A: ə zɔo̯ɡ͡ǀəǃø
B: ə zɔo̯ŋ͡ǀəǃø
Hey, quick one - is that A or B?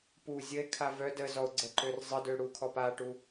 A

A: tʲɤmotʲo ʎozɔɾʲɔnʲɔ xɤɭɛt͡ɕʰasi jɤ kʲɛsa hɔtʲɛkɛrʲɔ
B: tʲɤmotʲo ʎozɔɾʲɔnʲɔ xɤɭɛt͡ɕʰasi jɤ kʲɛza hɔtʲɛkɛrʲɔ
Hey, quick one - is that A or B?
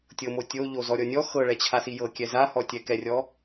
B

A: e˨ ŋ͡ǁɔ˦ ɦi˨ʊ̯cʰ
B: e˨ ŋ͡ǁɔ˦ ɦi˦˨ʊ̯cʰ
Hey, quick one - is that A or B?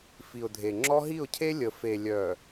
B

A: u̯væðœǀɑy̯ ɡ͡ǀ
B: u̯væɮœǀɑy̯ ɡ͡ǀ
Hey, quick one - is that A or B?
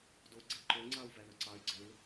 A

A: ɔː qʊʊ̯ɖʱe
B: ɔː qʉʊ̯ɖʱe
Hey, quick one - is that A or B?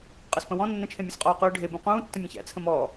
B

